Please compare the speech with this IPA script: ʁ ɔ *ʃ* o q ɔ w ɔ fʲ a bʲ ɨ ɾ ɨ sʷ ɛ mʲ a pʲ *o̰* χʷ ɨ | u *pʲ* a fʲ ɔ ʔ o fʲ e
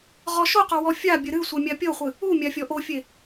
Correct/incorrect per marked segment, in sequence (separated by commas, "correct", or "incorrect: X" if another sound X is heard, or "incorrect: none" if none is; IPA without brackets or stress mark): correct, incorrect: o, incorrect: mʲ